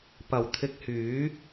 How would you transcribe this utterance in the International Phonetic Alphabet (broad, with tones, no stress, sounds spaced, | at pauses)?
p ɐ˨˩ w t̪ʰ ɪ˧ k̚ h yː˨˥